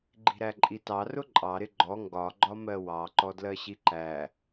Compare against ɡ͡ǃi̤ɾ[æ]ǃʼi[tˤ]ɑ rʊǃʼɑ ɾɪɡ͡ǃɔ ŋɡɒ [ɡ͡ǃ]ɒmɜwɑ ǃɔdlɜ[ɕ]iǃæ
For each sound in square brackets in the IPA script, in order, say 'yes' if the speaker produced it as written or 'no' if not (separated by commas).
yes, no, yes, yes